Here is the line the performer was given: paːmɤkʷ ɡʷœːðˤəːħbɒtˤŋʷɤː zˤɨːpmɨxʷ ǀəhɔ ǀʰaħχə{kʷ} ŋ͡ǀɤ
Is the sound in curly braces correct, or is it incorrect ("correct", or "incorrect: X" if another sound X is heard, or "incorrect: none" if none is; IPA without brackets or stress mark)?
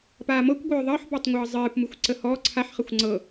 incorrect: xʷ